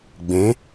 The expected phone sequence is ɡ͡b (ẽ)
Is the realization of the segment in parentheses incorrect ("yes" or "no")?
no